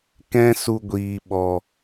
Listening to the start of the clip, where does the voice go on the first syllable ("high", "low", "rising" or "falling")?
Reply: high